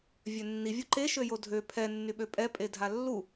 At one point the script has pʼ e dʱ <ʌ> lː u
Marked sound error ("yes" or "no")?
yes